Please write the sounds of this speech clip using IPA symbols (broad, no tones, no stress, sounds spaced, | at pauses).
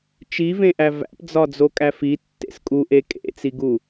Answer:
t͡ʃ i v ẽ ʔ æ v æ̰ p d͡z ɒ d͡z o kʼ æ f i tː ḛ s kʼ u ʔ e kʼ ḛ t͡s i ɡ u